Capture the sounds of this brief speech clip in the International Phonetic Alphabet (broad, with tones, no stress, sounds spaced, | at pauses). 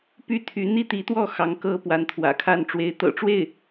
p y˥˩ t̪ʰ y˧˥ n̪ i˥ t̪ i˧˥ t̪ w ɔ˥˩ x ɑ˧˥ ŋ k ɤ˥ p w a˧˥ n t̪ʰ w ä̰˨˩ kʰ a˥˩ n ʈ͡ʂ w e˧˥ ɪ̯ t̪ ɤ̰˨˩ ʈ͡ʂ w e˥˩ ɪ̯